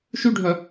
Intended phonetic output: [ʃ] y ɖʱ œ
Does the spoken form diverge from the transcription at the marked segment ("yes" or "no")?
no